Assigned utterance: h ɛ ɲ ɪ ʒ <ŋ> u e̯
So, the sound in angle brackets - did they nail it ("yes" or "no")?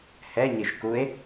no